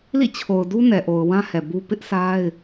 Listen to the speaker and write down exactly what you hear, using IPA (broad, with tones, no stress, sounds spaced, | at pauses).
l ḭ˦˨ t͡ɕʰ o˨ ʊ̯ d u˦ n ɛ˨ ʔ o˨ ʊ̯ w ã˦ h ɛ˨ b u˦ p ɪ˦ ʔ s a˦ ɪ̯